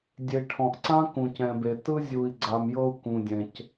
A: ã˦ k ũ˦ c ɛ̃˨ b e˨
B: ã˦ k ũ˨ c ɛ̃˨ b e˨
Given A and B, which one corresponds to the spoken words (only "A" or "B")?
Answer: B